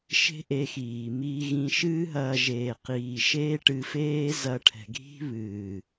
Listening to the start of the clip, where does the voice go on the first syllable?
high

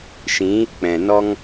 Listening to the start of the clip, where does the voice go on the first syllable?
rising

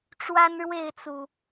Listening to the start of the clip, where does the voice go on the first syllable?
high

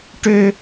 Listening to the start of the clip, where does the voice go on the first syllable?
high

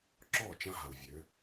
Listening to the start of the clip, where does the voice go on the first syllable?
falling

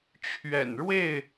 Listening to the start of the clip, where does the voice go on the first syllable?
low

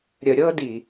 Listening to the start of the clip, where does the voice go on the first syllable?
low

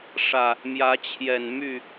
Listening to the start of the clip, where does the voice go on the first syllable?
low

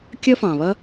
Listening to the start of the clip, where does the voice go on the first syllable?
high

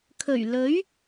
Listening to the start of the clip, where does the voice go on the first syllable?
low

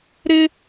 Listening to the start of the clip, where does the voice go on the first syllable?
high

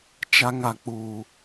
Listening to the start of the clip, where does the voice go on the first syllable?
high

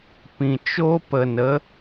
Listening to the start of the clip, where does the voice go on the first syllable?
low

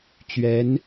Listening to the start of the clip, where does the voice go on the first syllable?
rising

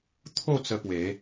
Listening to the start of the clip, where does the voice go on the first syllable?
falling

